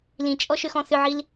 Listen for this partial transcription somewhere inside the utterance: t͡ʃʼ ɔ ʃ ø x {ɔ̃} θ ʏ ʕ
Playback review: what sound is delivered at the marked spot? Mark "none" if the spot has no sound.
ɔ̃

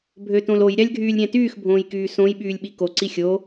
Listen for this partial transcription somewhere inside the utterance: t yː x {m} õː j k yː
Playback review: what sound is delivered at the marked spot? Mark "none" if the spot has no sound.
bʱ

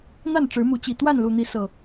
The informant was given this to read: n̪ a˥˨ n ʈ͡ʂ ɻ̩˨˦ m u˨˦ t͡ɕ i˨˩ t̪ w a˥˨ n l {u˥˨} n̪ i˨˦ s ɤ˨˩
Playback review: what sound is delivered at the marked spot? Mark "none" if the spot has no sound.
u˨˩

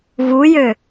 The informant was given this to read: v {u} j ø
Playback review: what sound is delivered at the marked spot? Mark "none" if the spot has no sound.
u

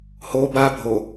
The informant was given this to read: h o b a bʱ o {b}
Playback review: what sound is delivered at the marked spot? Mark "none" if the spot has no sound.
none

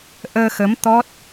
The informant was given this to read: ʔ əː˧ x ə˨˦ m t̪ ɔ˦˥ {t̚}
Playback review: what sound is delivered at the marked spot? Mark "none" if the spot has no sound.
t̚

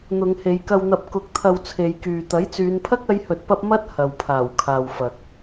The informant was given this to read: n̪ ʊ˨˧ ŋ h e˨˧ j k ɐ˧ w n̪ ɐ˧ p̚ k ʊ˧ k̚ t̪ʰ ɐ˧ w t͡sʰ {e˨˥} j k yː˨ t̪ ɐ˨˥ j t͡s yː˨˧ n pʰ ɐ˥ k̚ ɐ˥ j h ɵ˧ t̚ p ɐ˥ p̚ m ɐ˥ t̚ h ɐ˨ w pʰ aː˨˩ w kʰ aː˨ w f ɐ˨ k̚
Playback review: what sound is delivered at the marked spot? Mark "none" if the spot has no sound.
e˨˧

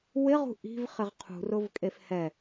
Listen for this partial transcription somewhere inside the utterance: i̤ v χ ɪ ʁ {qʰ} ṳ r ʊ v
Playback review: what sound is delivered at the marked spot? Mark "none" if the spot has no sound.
qʰ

